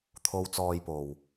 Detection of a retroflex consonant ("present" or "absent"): absent